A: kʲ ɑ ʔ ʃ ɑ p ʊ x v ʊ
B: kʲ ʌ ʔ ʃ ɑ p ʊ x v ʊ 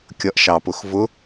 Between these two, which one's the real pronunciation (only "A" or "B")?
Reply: B